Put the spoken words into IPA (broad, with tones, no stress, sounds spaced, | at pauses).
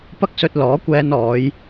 p ɐ˥ k̚ s ɵ˧ t̚ l ɔː˨˥ kʷ ɛː˧ n ɔː˨˧ j